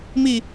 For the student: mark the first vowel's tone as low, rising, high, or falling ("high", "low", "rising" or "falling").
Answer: falling